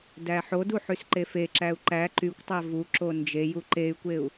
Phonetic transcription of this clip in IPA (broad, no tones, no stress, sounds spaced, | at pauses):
d æ ħ o d u ħ y s ǃ e f e ǁ æ u̯ ǃ æ ǃ y kʷ tˤ æ v u ǁ o n d͡ʒ e j u ǃ e y̯ kʷ e u̯